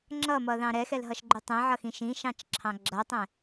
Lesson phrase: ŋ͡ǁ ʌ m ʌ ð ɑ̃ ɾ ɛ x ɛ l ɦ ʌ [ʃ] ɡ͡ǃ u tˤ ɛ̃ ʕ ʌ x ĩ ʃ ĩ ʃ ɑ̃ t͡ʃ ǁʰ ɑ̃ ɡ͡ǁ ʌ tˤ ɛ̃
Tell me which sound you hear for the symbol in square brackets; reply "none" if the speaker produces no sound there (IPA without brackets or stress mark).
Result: ʃ